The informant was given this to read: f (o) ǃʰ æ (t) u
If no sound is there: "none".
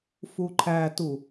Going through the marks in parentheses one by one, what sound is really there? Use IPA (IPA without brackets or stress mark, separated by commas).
u, t